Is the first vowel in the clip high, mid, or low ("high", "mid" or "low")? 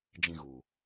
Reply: high